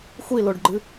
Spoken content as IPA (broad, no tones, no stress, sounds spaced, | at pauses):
xʷ i l o ɖ ɡ͡ǃ ɨ